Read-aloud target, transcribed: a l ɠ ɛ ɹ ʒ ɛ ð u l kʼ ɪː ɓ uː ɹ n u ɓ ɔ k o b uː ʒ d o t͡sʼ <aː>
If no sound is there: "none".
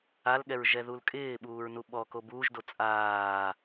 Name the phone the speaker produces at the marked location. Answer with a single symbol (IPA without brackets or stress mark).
aː